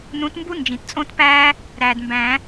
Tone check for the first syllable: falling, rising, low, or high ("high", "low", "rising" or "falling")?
rising